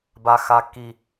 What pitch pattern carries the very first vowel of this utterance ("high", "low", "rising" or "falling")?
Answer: high